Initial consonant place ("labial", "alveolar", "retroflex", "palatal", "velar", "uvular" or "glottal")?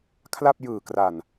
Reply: velar